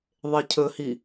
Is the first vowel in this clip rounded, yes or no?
no